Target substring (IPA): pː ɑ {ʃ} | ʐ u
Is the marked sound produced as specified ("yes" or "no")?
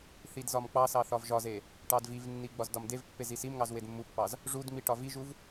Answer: no